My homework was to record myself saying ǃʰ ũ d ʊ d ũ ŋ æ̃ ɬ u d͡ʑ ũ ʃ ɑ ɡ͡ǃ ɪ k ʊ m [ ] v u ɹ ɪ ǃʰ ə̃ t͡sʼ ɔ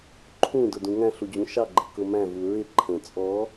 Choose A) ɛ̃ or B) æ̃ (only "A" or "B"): B